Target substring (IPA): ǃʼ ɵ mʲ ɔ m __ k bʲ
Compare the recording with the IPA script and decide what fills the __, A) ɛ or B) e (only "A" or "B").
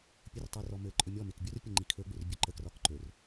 B